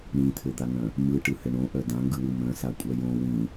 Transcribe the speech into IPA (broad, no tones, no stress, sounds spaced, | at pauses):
ɳ ĩ t̪ʰ ɘ d̪ a ŋ œ̃ | m ɯ ʈ ɯ h ɘ ɳ õ ʔ œ d ã ŋ ɡ ɯ w ɯ m œ̃ s a kʷʼ œ j õ w ĩ